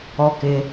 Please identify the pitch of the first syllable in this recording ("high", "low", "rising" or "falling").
falling